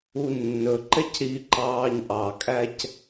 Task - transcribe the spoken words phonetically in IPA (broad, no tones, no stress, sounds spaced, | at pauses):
u nː ɵ ǃ ɛ c ɾ i ǃ ɑː ɲ ʔ ɑ kʼ æ c